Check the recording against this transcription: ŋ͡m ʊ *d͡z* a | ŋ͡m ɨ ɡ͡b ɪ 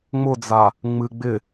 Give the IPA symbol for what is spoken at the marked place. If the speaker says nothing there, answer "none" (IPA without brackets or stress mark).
d͡z